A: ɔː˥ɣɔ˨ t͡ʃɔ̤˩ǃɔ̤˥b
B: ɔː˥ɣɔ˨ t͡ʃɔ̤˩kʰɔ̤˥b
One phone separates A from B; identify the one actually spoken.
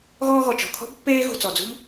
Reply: B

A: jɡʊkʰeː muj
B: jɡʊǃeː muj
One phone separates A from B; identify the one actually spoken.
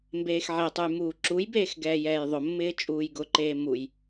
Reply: B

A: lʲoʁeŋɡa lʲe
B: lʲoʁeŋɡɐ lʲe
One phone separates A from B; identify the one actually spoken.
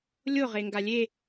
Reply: A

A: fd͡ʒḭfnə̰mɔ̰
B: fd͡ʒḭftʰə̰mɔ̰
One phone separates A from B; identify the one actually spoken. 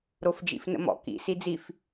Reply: A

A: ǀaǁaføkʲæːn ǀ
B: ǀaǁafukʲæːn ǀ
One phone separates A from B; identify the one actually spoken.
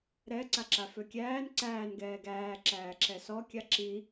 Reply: A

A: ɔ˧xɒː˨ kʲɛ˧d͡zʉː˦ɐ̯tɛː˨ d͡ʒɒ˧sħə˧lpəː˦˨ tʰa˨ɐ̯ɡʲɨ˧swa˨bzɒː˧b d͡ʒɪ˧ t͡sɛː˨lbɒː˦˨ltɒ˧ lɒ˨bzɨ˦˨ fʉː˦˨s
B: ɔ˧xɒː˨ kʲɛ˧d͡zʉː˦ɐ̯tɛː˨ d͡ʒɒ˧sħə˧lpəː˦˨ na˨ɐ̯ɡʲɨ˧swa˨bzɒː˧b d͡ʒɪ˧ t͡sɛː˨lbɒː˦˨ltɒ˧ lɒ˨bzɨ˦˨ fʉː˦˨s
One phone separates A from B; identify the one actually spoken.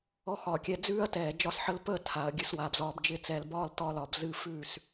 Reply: A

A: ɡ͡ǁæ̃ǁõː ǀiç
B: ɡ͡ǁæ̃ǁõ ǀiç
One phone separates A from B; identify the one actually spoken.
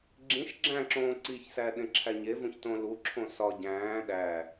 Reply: A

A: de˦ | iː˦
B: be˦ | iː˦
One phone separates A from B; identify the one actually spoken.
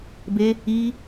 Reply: B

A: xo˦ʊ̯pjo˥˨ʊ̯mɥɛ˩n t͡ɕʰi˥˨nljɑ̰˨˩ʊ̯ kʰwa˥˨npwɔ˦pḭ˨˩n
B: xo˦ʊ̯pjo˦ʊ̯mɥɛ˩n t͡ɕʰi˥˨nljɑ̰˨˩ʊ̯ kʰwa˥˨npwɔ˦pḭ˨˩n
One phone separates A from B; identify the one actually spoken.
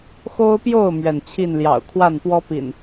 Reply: A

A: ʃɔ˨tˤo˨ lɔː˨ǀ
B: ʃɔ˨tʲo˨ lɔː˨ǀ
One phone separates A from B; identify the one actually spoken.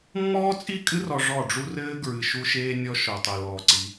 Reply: A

